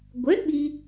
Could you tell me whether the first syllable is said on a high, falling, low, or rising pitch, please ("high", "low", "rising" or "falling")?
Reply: rising